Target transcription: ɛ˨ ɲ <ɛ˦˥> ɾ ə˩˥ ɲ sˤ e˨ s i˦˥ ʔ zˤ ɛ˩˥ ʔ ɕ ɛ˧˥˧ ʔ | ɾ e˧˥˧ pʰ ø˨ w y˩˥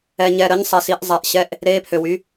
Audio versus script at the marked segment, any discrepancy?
yes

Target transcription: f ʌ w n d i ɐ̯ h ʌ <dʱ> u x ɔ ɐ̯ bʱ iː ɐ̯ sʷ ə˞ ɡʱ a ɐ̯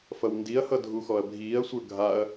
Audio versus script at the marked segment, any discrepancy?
no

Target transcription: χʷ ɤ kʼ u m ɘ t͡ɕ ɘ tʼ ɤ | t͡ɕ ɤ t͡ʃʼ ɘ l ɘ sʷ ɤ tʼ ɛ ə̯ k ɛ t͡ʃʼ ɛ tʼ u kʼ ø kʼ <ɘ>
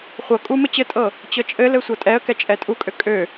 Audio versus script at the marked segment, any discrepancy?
yes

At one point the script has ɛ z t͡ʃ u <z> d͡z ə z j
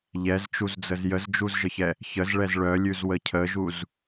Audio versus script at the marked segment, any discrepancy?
no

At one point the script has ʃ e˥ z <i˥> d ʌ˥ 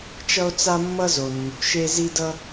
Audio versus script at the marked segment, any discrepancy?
no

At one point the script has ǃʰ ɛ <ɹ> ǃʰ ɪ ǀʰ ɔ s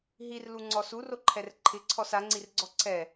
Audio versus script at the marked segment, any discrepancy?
yes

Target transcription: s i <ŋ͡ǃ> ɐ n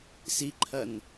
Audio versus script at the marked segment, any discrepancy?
yes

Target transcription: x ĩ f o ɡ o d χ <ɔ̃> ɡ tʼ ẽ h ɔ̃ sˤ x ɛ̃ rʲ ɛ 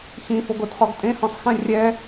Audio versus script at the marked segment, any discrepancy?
yes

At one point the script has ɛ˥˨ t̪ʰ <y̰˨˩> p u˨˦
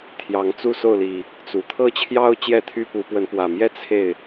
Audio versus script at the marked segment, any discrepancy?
yes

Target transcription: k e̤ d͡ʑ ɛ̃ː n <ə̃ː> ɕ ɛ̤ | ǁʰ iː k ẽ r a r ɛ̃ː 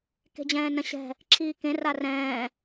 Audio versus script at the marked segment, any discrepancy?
yes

